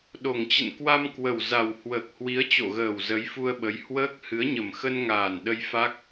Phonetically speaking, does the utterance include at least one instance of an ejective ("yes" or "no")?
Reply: no